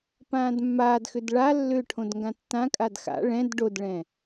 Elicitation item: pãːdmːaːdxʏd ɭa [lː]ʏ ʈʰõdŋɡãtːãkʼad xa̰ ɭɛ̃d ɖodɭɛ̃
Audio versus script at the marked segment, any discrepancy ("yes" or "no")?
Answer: no